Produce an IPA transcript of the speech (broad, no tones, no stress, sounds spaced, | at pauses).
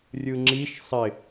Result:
rʲ ɯ ŋ͡ǁ i ʃ sˤ ɪ